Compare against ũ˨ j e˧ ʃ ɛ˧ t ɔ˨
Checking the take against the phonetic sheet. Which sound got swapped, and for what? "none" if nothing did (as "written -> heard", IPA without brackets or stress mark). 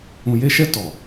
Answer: none